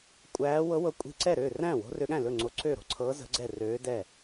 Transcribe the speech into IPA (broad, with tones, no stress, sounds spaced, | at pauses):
kʷʼ æː˧˥ w ɤ˧˥ w ɤ˧˥ kʷʼ i̤˧˥ ǀ ɛ˥˩ ɾ ø˥˩ r æ̃˥˩ w o̤˧˥ r ø˧˥ ɠ æ̃˥˩ l ɵ˥˩ ŋ͡ǀ o˧˥ ǀ øː˥˩ ɾ o̤˧˥ ǀʰ ɤː˧˥ z ə̤˧˥ ɡ͡ǀ ɛ˥˩ r øː˧˥ d ɛ˥˩